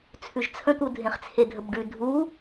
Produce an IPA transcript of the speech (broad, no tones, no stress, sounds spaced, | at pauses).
t͡sʰ ʉ ʒ t͡sʰ ə̃ t̪ u dʱ ẽ χ t͡sʰ e dʱ ə b ɖ ʉ dʱ u